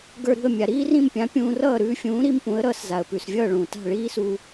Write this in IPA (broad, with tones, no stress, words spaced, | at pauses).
ɡə˞˧ɾṳ˥˩ə̯mʲa˩ ɾiː˥rĩ˥˩mpʲã˩˥ pʲũː˧rʌː˥˩ ɾʉː˧fʲũː˩˥ ɾi˥mpũ˩˥ə̯ɾʌː˩˥sza˩ə̯ pʉ˩svʲʌː˥˩ɭũː˩ta̤˥˩ ɭiː˥su˧